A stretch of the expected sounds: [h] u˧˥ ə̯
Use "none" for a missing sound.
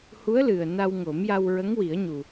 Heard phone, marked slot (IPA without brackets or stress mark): h